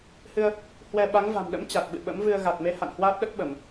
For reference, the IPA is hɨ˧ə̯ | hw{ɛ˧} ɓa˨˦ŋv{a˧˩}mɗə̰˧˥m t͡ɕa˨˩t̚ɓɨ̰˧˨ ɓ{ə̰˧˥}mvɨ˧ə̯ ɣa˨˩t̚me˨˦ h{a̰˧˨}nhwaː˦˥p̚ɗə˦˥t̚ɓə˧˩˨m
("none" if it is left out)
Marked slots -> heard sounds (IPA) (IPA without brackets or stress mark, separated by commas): ɛ˧, a̤˨˩, ə̰˧˥, a̰˧˨